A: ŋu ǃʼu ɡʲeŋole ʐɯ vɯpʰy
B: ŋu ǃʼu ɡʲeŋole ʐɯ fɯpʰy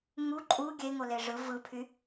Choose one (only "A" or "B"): A